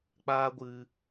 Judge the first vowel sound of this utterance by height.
low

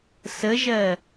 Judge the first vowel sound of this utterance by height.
mid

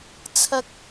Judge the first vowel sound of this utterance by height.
low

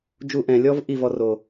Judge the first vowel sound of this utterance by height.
high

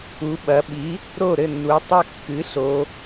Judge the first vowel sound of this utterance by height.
high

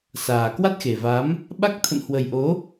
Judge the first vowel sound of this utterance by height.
low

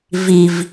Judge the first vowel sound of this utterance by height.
high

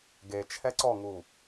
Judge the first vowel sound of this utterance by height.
mid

